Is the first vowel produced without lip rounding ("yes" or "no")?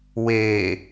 yes